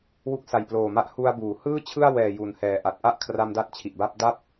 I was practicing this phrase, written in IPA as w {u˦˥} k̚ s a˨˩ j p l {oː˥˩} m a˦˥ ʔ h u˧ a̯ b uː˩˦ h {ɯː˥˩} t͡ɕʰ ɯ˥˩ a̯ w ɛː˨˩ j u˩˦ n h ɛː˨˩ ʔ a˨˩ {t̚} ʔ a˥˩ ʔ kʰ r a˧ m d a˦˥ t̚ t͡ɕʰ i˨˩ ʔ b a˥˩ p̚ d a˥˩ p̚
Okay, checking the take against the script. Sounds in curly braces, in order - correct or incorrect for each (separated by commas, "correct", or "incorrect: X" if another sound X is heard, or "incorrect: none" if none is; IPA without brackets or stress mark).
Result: correct, incorrect: oː˨˩, correct, correct